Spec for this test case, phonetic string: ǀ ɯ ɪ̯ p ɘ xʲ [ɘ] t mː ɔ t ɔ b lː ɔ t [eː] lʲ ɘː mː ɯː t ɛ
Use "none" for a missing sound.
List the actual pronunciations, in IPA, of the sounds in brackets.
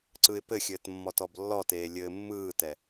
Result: ɘː, eː

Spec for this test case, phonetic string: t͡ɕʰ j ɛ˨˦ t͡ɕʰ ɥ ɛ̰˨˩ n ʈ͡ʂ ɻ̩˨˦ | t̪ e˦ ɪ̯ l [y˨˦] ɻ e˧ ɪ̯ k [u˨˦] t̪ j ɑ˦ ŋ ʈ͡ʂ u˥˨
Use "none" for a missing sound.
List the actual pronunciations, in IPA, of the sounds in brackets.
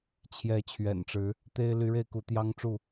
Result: y˨˦, u˨˦

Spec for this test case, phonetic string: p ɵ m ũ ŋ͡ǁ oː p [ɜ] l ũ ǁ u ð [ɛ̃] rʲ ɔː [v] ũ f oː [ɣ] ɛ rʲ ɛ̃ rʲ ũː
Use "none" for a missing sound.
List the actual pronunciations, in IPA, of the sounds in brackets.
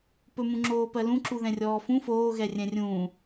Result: ɜ, ɛ̃, f, ɣ

